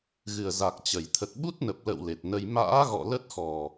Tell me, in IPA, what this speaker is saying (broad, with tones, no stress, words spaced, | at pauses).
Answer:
ɣɨ˨˩ə̯ za˨˩k̚ t͡ɕə˧˩jt̪ʰə˨˩t̚ɓu˦˥t̚nə˨˩p̚ lə̰˧˨w le˨˩t̚nə˧j ma̰ː˧˥ɣɔ̰˧˨ lə˦˥t̚xɔ˨˩